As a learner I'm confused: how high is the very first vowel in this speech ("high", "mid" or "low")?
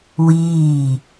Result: high